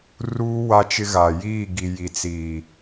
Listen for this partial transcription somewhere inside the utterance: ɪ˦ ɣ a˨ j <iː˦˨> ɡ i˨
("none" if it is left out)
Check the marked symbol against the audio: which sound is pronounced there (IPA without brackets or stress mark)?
iː˦˨